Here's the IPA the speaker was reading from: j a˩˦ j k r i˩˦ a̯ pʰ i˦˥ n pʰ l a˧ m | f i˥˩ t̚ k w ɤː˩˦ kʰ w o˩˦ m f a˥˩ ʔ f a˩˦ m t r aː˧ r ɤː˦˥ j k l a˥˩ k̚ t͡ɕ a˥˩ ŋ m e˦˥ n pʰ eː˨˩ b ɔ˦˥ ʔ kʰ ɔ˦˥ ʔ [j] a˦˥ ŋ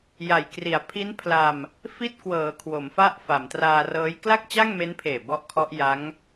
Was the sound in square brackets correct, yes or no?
yes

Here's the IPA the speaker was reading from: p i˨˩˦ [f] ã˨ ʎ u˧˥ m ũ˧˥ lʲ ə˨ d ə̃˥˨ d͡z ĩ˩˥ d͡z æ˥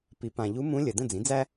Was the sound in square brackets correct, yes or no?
no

